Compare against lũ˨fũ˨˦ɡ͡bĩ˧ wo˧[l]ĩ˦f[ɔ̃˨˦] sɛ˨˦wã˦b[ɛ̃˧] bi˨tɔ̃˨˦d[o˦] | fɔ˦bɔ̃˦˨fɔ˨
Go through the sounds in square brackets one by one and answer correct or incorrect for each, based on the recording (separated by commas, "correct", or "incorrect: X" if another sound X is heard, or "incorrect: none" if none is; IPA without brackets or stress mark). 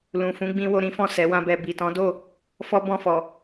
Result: incorrect: ɾ, incorrect: ɔ̃˦˨, incorrect: ɛ˧, incorrect: o˦˨